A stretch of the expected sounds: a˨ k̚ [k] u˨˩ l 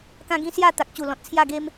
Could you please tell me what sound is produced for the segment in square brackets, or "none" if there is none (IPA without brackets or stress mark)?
t͡ɕ